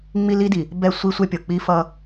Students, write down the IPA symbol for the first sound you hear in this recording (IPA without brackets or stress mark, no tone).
ŋ͡m